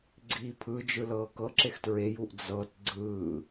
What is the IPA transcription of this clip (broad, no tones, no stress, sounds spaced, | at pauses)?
ɡ͡ǀ iː pʰ ɯ d͡ʒ ɯ l ɤː k ɤ ǁ e x t ɹ e j u ʔ d͡z ɤ t ɡ͡ǀ ɯː